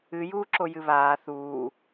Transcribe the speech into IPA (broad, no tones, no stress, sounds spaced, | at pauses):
ɨ j uː ǁ o j ɨ β aː θ uː